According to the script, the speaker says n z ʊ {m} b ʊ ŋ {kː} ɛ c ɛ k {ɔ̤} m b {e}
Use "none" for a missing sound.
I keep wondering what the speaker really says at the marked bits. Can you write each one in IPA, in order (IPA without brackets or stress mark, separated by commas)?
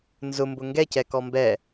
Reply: m, ɡ, ɔ, ɛ